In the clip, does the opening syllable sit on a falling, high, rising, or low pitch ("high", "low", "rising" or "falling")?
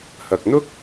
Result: low